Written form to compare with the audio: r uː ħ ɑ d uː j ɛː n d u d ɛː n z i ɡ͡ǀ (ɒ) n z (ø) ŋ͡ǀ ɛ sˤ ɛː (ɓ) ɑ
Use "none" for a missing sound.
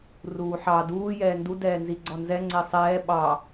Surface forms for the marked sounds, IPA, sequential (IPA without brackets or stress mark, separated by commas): ɒ, ɛ, ɓ